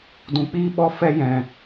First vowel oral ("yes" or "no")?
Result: no